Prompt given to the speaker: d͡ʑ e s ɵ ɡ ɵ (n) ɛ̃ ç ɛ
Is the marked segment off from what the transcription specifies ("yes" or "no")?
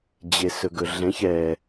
yes